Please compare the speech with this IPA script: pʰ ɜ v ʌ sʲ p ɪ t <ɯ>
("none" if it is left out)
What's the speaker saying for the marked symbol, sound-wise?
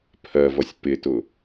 ʊ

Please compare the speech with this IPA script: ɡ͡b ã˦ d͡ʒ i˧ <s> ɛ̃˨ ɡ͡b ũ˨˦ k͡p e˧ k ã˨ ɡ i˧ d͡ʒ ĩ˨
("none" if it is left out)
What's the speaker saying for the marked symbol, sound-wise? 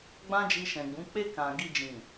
ʃ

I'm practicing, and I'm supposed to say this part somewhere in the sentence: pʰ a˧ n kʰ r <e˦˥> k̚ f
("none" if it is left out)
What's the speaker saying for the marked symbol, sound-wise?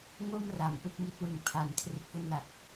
e˦˥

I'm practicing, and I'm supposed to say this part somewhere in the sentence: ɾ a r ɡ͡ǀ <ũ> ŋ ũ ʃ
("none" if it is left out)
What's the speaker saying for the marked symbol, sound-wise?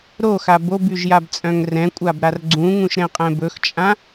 ũ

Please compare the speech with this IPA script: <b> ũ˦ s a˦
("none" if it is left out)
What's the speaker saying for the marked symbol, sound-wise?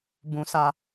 b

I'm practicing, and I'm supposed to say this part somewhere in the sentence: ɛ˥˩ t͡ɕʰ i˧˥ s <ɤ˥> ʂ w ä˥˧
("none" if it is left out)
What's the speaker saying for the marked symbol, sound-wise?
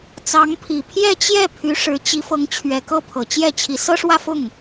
ɤ˥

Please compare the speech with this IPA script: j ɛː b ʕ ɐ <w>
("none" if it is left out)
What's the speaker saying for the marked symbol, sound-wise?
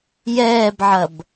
b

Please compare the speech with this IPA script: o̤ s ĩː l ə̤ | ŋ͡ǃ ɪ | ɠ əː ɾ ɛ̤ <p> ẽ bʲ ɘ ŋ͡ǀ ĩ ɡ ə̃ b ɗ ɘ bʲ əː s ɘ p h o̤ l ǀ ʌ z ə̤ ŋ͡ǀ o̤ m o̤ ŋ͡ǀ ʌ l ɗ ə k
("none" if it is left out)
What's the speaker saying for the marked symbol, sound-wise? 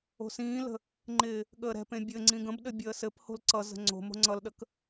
p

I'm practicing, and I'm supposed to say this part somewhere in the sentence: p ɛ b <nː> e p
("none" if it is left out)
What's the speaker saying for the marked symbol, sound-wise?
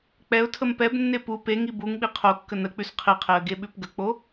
nː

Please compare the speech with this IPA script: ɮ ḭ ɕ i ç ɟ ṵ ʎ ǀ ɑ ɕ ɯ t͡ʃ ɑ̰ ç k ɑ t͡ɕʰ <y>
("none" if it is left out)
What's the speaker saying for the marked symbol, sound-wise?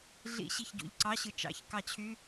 y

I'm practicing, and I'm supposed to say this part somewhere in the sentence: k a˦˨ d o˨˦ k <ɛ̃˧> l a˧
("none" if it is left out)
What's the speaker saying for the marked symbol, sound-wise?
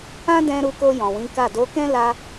ɛ̃˦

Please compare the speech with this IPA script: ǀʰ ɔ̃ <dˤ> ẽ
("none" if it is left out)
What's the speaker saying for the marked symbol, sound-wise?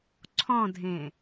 dʱ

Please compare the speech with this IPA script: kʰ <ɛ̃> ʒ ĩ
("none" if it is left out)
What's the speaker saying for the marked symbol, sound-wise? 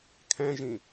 ɛ̃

